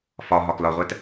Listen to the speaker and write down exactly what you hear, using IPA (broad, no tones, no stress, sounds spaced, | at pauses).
f ɒ ɦ ɒ k l ɒ ʁʷ æ t